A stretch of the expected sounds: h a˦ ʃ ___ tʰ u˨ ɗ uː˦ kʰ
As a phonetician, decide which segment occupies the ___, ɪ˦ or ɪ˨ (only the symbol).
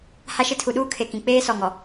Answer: ɪ˦